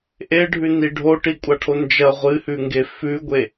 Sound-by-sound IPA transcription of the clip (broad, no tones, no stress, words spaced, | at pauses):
ʔeɖʱʉni ɖʱoʈikʷʼaʈʰo nd͡ʒɐ ʁʷɨhʉŋɡe fʉɡʷe